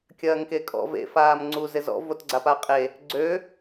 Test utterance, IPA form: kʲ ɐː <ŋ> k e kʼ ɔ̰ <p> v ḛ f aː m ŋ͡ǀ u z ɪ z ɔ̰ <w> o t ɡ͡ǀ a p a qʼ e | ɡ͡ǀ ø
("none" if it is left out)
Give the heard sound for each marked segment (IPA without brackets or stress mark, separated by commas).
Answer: ŋ, none, v